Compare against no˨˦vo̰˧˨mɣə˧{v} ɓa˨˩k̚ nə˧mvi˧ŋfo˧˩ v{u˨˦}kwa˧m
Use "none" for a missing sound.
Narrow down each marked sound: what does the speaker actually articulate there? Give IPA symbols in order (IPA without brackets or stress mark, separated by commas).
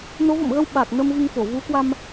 w, u˨˦